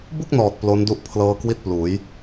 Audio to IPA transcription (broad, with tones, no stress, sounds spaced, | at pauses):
b u˥˩ k̚ n ɔː˨˩ t̚ p l o˦˥ n d u˥˩ ʔ pʰ l ɤː˧ k w i˥˩ t̚ p l uː˩˦ j